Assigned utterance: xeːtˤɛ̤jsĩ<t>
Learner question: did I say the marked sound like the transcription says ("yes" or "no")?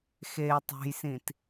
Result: yes